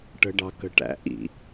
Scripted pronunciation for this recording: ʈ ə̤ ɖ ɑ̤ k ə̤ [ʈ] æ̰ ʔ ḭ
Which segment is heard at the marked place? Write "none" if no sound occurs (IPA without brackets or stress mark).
ʈ